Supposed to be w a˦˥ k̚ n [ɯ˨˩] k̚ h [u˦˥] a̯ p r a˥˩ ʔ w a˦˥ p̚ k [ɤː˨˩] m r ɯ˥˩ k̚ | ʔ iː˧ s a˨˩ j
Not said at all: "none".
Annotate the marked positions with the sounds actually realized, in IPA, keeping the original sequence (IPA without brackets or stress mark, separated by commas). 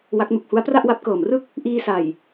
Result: u˨˩, u˦˥, ɤː˨˩